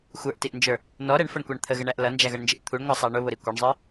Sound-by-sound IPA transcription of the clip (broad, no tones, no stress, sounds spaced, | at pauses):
xʷ ə˞ ʔ t i ʔ n d͡ʒ ə˞ | n ɔ ɾ ɛ ɳ f ʌ ɳ kʷ ɑ ɳ t̪ʰ ə ɣ ə ɳ æ ʔ l ʌ n d͡ʒ æ ɣ ʌ ɳ n d͡ʒ ɪ ʔ t̪ʰ u ɳ ŋʷ æ sˤ ɑ ɳ ʊ β ʊ ɾ i kʷ ɛ ɳ zˤ ə˞